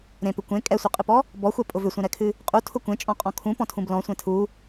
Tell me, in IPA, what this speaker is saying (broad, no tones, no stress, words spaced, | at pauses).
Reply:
ɾẽpʏ kʷẽ kʼɛsʷɨqʼɨpɔ | bɔxʷɛpʼʊ vʏsʷẽɾɛkʰɨ | qʼutʰʊ kʷẽt͡ʃʼɔ̃qʼɔ̃ kʰũpɔ̃tʰũb lɔ̃sʷẽ tʰu